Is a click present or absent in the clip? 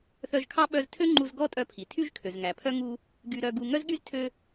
present